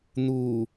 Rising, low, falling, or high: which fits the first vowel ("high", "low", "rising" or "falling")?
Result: low